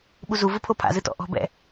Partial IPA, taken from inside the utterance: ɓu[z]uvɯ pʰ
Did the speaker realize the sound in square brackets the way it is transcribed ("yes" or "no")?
yes